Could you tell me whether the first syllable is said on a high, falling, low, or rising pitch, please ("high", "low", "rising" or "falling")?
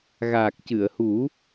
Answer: low